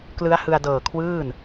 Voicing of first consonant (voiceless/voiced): voiceless